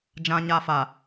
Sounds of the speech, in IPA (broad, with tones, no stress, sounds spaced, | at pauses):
d͡ʒ ã˦ ɲ a˦ f a˨